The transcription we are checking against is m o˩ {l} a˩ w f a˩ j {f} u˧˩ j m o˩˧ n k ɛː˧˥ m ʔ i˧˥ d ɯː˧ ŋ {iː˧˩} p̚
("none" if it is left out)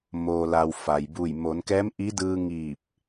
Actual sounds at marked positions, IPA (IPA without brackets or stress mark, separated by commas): l, b, iː˧˩